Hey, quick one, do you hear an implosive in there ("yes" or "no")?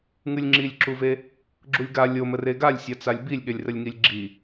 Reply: yes